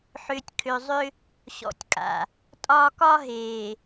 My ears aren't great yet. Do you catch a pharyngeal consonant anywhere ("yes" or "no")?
yes